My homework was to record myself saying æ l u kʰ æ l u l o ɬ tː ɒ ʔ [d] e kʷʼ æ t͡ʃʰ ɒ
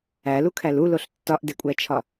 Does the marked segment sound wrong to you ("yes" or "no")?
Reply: no